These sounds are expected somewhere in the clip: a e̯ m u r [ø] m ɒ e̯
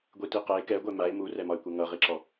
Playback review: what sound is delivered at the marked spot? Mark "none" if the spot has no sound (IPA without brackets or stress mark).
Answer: ɛ